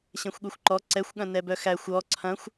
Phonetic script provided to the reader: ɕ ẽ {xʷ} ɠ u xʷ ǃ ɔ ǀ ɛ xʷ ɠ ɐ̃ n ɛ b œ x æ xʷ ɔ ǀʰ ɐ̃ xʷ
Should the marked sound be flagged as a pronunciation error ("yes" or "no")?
no